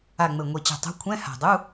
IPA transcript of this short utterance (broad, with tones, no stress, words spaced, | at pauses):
a˨˩ ŋ͡mɘ˨˩ŋʷi˨˩t͡ɕɛ̤˨˩tˤṳ˨˥ kʷʰɛ̃˧˥˧ha̤˨˩dˤu˧˥˧